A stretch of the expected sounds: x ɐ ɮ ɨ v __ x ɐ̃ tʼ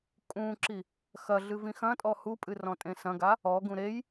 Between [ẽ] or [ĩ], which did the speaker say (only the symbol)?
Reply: ĩ